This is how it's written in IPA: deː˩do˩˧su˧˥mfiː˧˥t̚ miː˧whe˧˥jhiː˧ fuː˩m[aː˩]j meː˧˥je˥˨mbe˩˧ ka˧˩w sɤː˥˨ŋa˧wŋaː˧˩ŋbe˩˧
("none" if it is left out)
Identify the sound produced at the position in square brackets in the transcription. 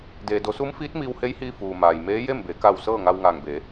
aː˩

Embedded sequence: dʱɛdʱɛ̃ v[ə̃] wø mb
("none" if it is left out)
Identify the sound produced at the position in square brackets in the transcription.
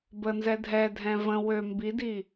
ə̃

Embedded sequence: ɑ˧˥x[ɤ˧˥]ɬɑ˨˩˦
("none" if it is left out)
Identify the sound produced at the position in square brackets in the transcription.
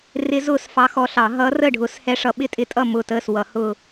ɔ˧˥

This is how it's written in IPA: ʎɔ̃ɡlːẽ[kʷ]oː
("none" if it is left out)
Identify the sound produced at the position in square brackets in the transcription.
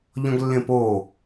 p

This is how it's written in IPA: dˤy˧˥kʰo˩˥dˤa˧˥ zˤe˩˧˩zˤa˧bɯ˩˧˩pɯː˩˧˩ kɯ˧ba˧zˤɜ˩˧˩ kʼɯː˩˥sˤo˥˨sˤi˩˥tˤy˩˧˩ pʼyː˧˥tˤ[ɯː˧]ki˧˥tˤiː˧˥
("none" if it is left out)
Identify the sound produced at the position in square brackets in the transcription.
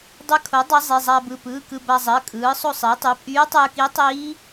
ɯː˧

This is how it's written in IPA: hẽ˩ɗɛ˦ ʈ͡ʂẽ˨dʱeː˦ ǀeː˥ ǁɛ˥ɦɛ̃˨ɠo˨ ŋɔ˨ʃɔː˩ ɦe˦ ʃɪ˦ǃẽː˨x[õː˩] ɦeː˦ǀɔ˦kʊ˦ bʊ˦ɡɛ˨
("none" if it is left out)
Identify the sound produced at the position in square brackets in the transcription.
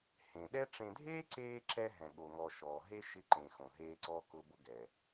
õ˩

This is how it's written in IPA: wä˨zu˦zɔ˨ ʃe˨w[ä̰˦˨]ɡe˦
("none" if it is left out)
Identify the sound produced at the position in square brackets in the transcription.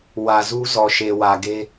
ä˨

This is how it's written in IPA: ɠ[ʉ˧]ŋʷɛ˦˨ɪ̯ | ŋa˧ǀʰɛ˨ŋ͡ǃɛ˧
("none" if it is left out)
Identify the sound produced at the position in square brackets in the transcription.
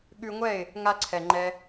ʉ˧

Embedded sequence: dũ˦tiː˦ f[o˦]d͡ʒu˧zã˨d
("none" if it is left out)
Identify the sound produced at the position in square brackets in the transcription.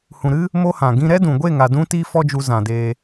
ɔ˦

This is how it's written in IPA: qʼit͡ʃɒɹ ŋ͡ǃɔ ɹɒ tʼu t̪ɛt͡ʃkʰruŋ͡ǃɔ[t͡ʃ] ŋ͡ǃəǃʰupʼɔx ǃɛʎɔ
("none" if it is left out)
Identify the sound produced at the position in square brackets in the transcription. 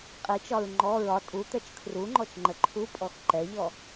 t͡ʃ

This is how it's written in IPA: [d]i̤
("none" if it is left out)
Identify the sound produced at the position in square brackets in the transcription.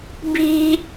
b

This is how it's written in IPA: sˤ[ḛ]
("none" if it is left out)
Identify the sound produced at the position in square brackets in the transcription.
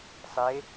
e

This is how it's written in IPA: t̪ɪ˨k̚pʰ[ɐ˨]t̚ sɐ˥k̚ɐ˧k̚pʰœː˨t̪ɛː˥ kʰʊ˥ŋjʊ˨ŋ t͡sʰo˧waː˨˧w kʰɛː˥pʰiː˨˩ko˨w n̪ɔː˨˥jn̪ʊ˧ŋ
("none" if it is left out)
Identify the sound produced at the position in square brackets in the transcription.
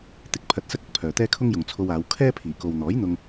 ɐ˨˥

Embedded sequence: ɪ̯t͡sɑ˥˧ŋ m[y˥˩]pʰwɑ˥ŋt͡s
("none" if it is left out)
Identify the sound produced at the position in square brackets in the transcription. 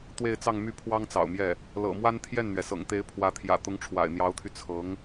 y˥˩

